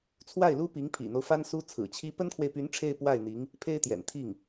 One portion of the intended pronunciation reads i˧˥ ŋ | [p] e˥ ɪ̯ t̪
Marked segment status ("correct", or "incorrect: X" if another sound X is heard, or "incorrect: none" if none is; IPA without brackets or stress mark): incorrect: pʰ